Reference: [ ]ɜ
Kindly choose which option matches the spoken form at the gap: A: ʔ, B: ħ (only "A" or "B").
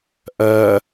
A